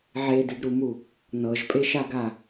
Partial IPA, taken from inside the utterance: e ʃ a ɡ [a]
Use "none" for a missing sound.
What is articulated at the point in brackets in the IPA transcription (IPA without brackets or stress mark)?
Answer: a